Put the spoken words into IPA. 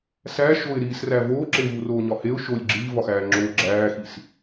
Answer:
s æ ʃ o ɪ̯ ɾ iː s r æ v oː ǁ e v u r oː ɲ ɒ h e ʊ̯ ʃ o lʲ ɡ͡ǁ iː v ɒ x æː ŋ͡ǁ oː ɡ͡ǁ æː x i s

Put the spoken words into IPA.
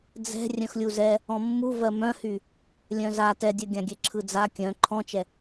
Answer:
d͡z ɛ̤ rʲ œ̃ x lʲ u z ɛ | ɔ̃ mː u v ɜ m œ̃ h y | lʲ œ̃ z a t ɛ dʲ ɜ ɡʲ ã ɡʲ ɛ ǁʰ ɯ d͡z a kʲ œ̃ ǃʰ ɔ̃ t͡ʃ ɛ

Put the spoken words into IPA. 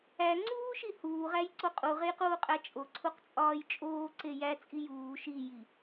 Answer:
æ ŋ͡ǀ uː ʃ i h uː ʁ æ j ǀ o qʼ u ʁ e j q uː qʼ æ t͡ʃʼ o ǀʰ u q t͡sʼ ɒː j t͡ʃʼ oː ǀ e j æ t͡sʼ i j uː ʃ i j i

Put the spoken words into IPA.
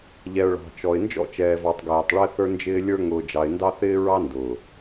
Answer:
ʎ ɛ˨ ʊ̯ ɭ ɑ̤˨ t͡ʃ ɔ˨ ɪ̯ n d͡ʒ ɔ̰˦˨ t͡ʃ ɛː˨ v ɑ˨ tˤ ɡ ɛː˨ tˤ ɭ ɛ˦ θ ə˞˦ n d͡ʒ ɪː˦ lʲ ə˞˦ ŋ ʊː˨ d͡ʒ ɑ˨ ɪ̯ n d ɑ˦ θ ɪː˦ ɹ ɑ˦ n d ʊː˨

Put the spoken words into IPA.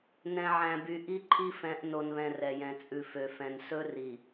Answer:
n ɛ̃˨ ʕ æ̃˨ b y˨ ʔ i˦ ǃʰ i˦ f ɛ̃˨˦ ʔ n o˨ n β ɛ̃˨ r ɛ˨ j ɛ̃˨ t͡sʼ ʉ˨ f ø˨ f ɛ̃˨ n s ɵ˦ r i˨

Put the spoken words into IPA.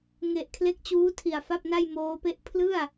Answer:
ŋ e˨˩ ʔ kʰ l e˦˥ k̚ t͡ɕ uː˦˥ tʰ i˨˩ a̯ f a˥˩ p̚ n a˥˩ j m oː˦˥ p e˥˩ ʔ pʰ l ɯ˥˩ a̯

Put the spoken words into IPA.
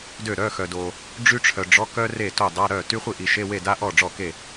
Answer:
d ø˥˩ ɾ œ˧˥˧ x œ˨ d o˨ | ɖ͡ʐ y˥ ʈ͡ʂʰ œ˨ ɖ͡ʐ ɔ˧˥˧ k œ˥ r e˥˩ t o˥˩ dˤ a˧˥˧ ɾ œ˥˩ t y˥ χʷ i˥˩ ʔ i˨ ʃ e˧˥˧ w e˥˩ d a˥ ʔ ɔ˥˩ ɖ͡ʐ ɔ˥˩ k e˥˩

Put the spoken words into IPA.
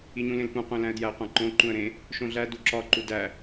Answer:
i ɲ ũ l ẽ l p ũ qʷ ẽ l æ̃ ə̯ d j æ qʷ æ̃ ǃ õ ǃ ũ ə̯ ɾ ẽ | ʃ õ ɮ æ d u ǁ ɒ ǃ u d æ

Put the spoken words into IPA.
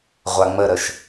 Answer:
ʁʷ a ŋ͡m ə ɾ ə ʃ

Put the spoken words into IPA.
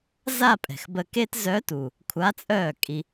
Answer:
z a˥˧ pʼ ɛ̤˨˩ x b ə˧ k e˥ t z œ˧˥ t u˨˩ | kʷʰ a˧˥ t͡sʼ œː˥˩ kʼ i˧

